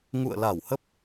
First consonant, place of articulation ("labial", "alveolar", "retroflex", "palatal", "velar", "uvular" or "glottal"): velar